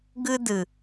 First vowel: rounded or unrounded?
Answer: unrounded